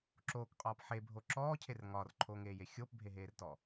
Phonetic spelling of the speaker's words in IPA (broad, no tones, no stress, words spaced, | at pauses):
ǁoːkqʼɒːp ħebʱo ǁɔːcʰer ŋɒːrǃʰoːŋeːje xʲoːpbʱeɦeːrtɔ